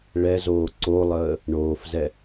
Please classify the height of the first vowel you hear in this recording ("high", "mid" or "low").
mid